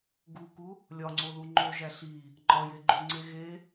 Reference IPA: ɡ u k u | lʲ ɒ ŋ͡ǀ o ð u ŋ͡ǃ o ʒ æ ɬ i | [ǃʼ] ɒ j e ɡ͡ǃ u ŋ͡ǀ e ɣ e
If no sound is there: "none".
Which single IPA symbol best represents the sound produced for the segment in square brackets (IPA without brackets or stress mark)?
ŋ͡ǃ